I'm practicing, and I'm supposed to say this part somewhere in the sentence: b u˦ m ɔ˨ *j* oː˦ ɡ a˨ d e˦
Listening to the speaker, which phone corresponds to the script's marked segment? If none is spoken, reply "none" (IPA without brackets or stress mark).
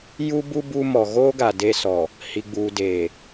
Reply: ɣ